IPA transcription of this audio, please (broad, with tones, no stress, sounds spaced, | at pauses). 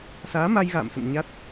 s aː˨˦ m a˧ j ɣ a̰ː˧˨ m s ə̰˧˨ n ɲ a˦˥ t̚